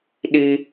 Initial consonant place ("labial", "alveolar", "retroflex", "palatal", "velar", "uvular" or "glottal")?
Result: alveolar